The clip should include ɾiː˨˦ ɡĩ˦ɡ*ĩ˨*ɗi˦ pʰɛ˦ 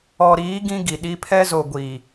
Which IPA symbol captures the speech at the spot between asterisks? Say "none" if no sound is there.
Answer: i˨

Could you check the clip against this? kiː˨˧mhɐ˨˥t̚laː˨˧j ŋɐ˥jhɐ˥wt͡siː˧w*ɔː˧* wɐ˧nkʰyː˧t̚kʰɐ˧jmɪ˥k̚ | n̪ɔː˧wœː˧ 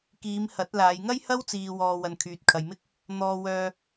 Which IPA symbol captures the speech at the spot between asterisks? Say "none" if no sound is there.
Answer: ɔː˧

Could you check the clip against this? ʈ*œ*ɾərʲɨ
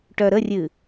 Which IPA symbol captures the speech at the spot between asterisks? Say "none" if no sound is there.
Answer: œ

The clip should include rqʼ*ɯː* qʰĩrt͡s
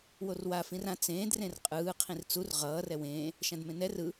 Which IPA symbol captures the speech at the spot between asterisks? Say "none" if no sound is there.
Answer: ɯː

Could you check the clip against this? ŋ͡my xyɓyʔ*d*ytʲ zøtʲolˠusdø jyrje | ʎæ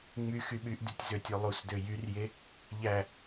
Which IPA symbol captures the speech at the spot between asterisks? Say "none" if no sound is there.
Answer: d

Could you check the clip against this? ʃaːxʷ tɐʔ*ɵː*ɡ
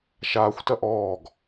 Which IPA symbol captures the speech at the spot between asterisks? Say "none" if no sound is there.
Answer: ɔː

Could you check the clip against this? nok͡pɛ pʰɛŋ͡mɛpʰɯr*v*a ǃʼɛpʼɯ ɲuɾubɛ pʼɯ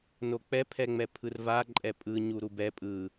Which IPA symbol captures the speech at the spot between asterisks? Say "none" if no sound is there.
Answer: v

